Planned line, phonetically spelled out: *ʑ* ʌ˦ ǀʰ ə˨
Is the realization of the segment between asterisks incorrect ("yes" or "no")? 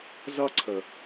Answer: yes